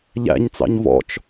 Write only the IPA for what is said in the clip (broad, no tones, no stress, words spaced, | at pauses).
ʎæ̰ɲt͡sɑ̰ɲ vɔ̰t͡ʃ